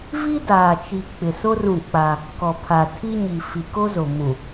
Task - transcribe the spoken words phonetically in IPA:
vi˦daː˨t͡ʃi˨ k͡pɪ˨so˦ rũ˦˨k͡pa˦ | kɔ˨pʰa˨ tʰi˦ɲi˨ fi˨ko˦zo˨ mũ˨

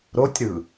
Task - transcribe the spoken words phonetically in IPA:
ɾotʲɾɯ

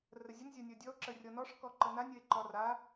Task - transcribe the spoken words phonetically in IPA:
rəzʲən zʲɒnʲɔdʲɔo̯ ǁərʲɔnɔʂ kɔǃənanʲ əe̯ǃɒra

